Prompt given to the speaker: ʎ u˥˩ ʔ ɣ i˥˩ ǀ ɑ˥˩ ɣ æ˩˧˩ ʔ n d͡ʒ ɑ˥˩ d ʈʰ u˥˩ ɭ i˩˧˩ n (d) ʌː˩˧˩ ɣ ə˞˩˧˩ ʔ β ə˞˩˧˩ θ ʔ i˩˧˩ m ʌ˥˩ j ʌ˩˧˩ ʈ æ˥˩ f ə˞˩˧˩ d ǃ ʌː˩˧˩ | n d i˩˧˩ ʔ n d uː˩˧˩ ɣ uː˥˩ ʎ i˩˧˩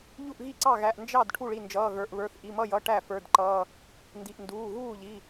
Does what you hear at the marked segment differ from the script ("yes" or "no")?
yes